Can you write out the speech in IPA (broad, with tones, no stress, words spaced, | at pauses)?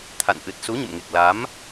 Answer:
t̪ʰa̰˧˨n ʔɨ˨˩t̚su˨˦ɲə̰˧˨mŋe˨˩k̚ la˨˦m